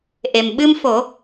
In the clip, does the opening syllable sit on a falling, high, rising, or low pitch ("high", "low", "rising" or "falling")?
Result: low